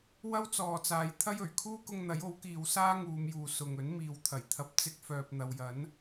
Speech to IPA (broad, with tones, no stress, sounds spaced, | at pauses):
w ɐ˥ w t͡s ɔː˨ t͡s aː˨ j t̪ʰ ɐ˥ j ɵ˨˩ ɥ kʰ uː˥ k ʊ˧ ŋ n̪ ɐ˨˥ j o˨˥ w k iː˨˧ w s aː˥ ŋ uː˨˧ m j uː˨ s ʊ˨ ŋ ɵ˨˥ n m iː˨ w t̪ʰ ɐ˨˩ j t̪ʰ ɐ˧ p̚ t͡s ɪ˥ k̚ f œː˧ p̚ n̪ ɐ˨ w j ɐ˨˥ n